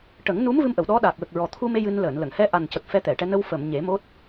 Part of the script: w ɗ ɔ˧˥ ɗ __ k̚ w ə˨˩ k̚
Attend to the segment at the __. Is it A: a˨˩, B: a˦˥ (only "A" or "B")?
A